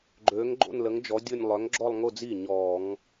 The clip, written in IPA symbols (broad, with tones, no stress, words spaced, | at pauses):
ɡ͡ǃøː˨˥ŋ ɡ͡ǃo̰˥˧nlə˨˥ŋd͡ʒɔ˨˥ dʲʊ˥˧nʲ lˠœ˨˥ŋɡ͡ǁɔ˥˧lˠŋʊ˥˧d͡zi˥˩ ɲɔː˧˩˧ŋ